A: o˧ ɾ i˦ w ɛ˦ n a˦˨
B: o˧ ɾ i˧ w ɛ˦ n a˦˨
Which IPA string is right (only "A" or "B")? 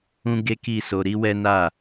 A